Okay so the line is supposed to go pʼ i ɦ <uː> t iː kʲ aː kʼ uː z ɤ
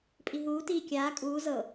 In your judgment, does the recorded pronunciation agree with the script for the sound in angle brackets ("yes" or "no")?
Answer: yes